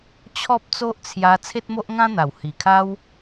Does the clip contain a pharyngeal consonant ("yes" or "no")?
no